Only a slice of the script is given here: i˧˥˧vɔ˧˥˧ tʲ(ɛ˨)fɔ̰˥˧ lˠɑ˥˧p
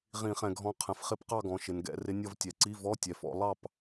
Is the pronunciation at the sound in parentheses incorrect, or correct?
correct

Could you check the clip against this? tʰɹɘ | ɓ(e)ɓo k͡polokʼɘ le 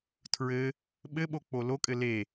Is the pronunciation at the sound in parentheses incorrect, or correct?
incorrect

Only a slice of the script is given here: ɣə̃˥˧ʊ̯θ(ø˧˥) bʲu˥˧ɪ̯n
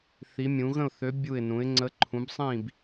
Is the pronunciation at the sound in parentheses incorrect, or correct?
correct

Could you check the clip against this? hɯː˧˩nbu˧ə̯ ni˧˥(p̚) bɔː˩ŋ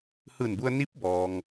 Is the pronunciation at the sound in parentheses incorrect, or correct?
correct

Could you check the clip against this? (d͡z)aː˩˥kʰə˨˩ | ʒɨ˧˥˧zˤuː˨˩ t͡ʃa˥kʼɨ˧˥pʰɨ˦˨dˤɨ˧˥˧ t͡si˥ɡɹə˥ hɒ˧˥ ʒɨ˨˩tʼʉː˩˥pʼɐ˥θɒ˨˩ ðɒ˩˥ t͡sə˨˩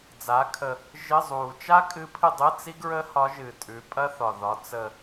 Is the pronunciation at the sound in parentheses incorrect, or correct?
correct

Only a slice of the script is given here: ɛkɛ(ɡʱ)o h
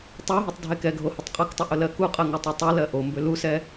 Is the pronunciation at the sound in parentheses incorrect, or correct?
correct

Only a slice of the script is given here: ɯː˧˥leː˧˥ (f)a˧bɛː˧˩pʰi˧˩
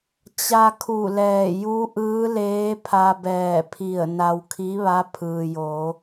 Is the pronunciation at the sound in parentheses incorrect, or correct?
incorrect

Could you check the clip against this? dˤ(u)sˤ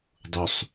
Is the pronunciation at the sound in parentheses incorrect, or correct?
correct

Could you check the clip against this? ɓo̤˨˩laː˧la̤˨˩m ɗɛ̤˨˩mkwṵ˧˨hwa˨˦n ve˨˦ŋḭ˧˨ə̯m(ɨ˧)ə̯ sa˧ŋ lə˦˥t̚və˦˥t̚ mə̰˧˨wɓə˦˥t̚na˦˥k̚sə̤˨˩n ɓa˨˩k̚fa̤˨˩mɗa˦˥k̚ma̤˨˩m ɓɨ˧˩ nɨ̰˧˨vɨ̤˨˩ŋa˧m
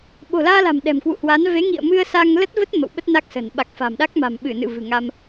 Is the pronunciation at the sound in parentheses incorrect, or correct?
correct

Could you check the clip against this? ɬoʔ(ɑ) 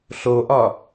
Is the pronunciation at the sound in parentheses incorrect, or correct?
incorrect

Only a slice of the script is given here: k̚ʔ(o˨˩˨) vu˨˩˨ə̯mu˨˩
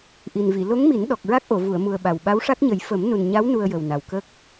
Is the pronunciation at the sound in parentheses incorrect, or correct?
correct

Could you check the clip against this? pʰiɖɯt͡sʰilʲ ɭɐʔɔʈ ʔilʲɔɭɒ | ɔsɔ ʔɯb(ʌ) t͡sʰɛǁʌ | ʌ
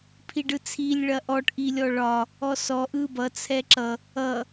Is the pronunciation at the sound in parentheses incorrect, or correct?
correct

